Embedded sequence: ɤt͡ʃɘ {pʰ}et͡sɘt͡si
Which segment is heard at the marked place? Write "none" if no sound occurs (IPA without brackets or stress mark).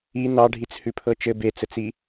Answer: b